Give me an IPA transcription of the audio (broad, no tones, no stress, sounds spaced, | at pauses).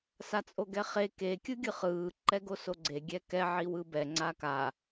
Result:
s a t͡sʼ o ɡ ɛ χ e k e kʲ ɯ ɡʲ ɯ χ ɯː ǃ ɛ ɡ o s o ɡ͡ǀ e ɡʲ ɛ k ɛ ʕ i w ɯ b ɛ ŋ͡ǀ a k a